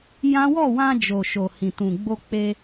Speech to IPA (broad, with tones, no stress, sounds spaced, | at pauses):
j ã˦ w ɔ˦˨ w ã˧ d͡ʒ o˨ ʃ o˨ h ĩ˨ t ũ˨ ɡ͡b o˧ k͡p e˧